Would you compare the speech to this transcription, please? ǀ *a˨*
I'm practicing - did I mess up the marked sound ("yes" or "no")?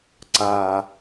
no